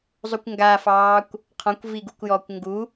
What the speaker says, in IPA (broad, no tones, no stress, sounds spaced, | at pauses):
zˤ u kʷ ŋ ɡ a f ɑː kʷ | qʰ ɔ̃ kʷ v i ɡ u kʷ j ɔː kʷ ŋ ɡ u